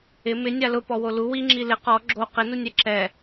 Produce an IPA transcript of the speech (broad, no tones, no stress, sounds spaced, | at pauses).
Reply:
ɪ m ɪ nʲ a l ʊ p ɔ w o l u w i ŋ͡ǁ i l ɪ q ɔ ɡ͡ǁ o q ɪ n u nʲ ɛ ǁ ɛ